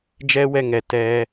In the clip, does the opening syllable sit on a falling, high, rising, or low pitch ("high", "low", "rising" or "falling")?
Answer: high